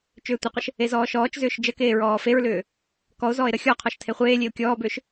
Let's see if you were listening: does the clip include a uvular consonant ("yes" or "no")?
yes